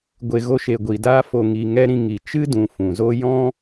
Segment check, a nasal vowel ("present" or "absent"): present